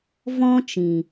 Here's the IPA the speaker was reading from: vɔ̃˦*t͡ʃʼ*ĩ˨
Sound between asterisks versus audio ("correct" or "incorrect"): incorrect